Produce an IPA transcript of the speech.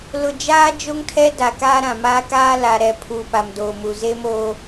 l ʊ˨ d͡ʒ aː˦ d͡ʒ o˦ ŋ tʰ ɛ˦ d a˨ k aː˦ ɾ ã˨ m aː˦ k aː˦ l a˨ ɾ ɛ˨ pʰ uː˨ p a˨ m d oː˨ m u˨ z e˦ m oː˦

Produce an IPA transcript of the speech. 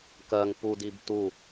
k ɜ ŋ p u d i b t u

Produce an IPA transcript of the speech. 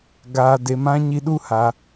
ɡ aː˨ d e˨ m ã˧ ɲ i˧ ɗ u˦ h a˧

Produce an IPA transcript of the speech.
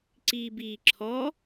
ǀ iː b iː ǁʰ ɔ

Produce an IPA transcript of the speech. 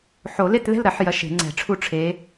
ħ o˨˩˦ l e˥˨ t ð ɛ̤˥˨ l ɾ ɐ˨˩˦ ħ j ɐ˨˦ ʃ e̤˨˩˦ ŋ͡ǀ ɛ̤˨˩˦ ʈ͡ʂʰ u˥˨ ʈ͡ʂʰ e˨˦

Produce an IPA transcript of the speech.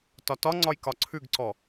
t ɒ t ɒ ŋ͡ǀ ɒ j k ɒ ǀʰ ʉ ɡ ǀ ɔ

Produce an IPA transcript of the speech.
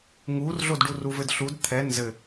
ŋ u r ɮ o d ɖ u r u v ɘ d ɬ u d t̪ʰ ɛ n z ɘ

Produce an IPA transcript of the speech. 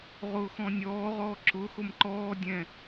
ʁ ʊː x ɔ̃ nʲ ɔː ʁ ɔː ǁ ʊ x ʊ m ǃ ɔː dʲ ɛ̃

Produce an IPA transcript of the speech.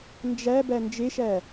n d͡ʒ æ b æ n d͡ʒ e ʃ æ

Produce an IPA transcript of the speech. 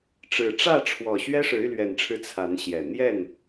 ʈ͡ʂ ɻ̩˨˩ ʈ͡ʂ ä˥˨ ʈ͡ʂʰ w ɔ˨˩ ɕ ɥ ɛ˦ ʂ ɻ̩˨˦ y˧ l ɥ ɛ˨˩ n ʈ͡ʂʰ ɻ̩˨˦ t͡sʰ a˨˦ n ɕ j ɛ˨˩ n̪ j ɛ˥˨ n

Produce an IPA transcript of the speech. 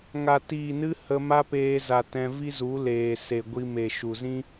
ŋ a˨ t iː˨ n ɨ˧ h ə˧ m a˦ p eː˧ z a˨ t ɛ̃˧ v i˦ z u˨˦ l eː˨ s e˨ ɡʷ i˧ m e˨ ʃ u˨ z ĩ˦

